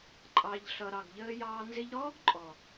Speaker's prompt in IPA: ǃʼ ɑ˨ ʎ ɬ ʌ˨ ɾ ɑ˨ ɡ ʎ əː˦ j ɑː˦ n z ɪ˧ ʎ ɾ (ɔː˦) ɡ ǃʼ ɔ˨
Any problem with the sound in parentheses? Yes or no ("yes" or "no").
no